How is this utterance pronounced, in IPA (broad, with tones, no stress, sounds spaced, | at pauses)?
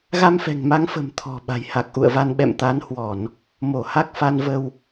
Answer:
ɣ a˧ m f ɛ̤˨˩ ŋ m a˨˦ ŋ f ə̤˨˩ m t̪ʰ ɔ̤˨˩ ɓ a̤˨˩ j h a˨˩ k̚ ʔ ṵ˧˨ ə̯ v a˧ n ɓ ɛ̰˧˨ m t̪ a˨˦ n h w ɔ˧˩˨ n | m o˧˩ h a˦˥ k̚ f a˧ n v ə˧ w